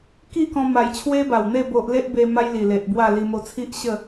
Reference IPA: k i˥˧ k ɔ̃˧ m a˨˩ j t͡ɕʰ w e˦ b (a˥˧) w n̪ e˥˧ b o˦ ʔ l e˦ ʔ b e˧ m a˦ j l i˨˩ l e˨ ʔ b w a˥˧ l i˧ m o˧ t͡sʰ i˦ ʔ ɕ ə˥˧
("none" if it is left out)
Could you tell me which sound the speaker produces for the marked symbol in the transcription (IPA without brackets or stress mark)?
a˨˩